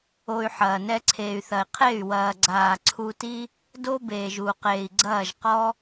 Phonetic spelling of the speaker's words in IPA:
o˧ y̯ ħ ɐː˨ n ɛ˧ ǀʰ eː˨ y̯ θ ɐ˨ i̯ qʰ e˦˨ y̯ w ɐː˨ ɡ͡ǀ aː˨ ǀʰ u˧ t i˦ | d o˦ b eː˨ ʒ u˧ q eː˨ i̯ ɡ͡ǀ ɐː˦˨ ʒ q ɔ˦

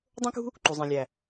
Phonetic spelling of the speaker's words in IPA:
dˤ õ˦ k ṳ˦ | ǃ u˨ zˤ ĩ˨ lʲ æ˨

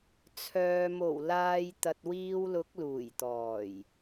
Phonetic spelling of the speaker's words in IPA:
t͡sʰ œː˨ m o˨˩ w l aː˨ j t̪ ɐ˨ t̚ w iː˧ w l ʊ˨˥ k̚ l uː˨˩ j t̪ ɔː˨˩ j

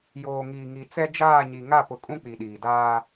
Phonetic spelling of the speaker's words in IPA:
j oː˨ ŋ iː˨ ŋ i˨ t͡s ɛ˦ d͡ʒ aː˦˨ ɲ i˨ ŋ a˦˨ p ʊ˨ kʼ ũ˦ k͡p i˨ ɗ iː˨ d aː˦

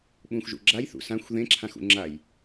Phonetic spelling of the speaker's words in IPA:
ɓ ũ x ʒ ṵ ɡ͡ǁ a j θ ṵ s ã xʷ ð ẽ ǁʰ ã x ṵ ŋ͡ǁ a j

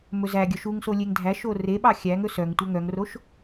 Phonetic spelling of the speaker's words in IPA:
m ɵ z æ ɡʲ œ ʃ u ŋ s o lʲ e ŋ dʱ æ ʃ o r e ɓ ɑ xʲ æ ŋ ɵ s œ ŋ tʷ œ ŋ œ ŋ r o ʃ

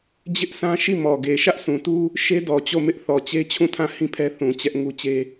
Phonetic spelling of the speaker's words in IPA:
d͡ʑ ɪ˦ ʔ sʰ ã˦ ʃ i˦˨ m ɔ˨ ɡ e˨ ʃ ä˦ ʔ sʰ ũ˨ t u˦ | ʃ e˦ d ɔ˨ t͡ɕ o˦˨ m ɪ˦ ʔ θ ɔ˨ t͡ɕ e˦ t͡ɕʰ ũ˦˨ tʰ ã˦˨ h ĩ˦ pʰ ɛ˦ θ ũ˨ t͡ɕ ɛ˦ ʔ ŋ u˦ t͡ɕ e˦

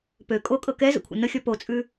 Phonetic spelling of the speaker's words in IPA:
p ø kʼ o kʼ ɤ k ɛ z ə̰ kʷʰ ə̰ n ə xʲ ɔ p o t͡sʼ ʉ

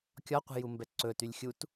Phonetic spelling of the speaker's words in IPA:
kʲ ɒ qʷ ɛ̤ j u m b ɛ ǀ ɵ t y lʲ xʲ u t

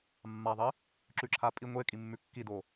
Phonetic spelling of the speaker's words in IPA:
mː a ðˤ i | ǁ ʉ ǁʰ a pʼ i ŋʷ e kʼ i mː ʉ kː i d o

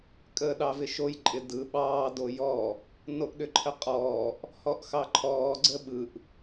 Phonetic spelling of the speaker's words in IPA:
kʼ əː ɗ ɑ v ɪ ʃ o j ǃʼ ɪ d ɯ ɓ ɑː d o j ɔ | n o ʔ ɗ ʏ ǃʰ ə qʼ ɔː ʔ | h ɔ ʔ x ɑ ǃʰ ɔː ɡ͡ǀ ə ɓ ɯ ʔ

